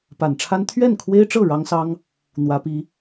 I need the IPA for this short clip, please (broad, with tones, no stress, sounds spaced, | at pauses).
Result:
p a˨˩ n ʈ͡ʂʰ a˥ n t̪ʰ ɥ ɛ˥˩ n kʰ w e˥ ɪ̯ ʈ͡ʂ ɤ˥˩ ɻ ɑ˥ ŋ s ɑ˥ ŋ | n̪ w ä˧˥ p i˧˥